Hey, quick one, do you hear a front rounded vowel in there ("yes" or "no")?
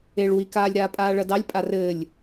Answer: no